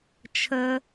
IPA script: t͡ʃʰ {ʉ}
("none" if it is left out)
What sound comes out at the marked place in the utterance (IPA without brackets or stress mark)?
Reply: ə